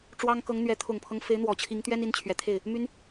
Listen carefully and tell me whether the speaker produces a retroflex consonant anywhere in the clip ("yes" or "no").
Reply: yes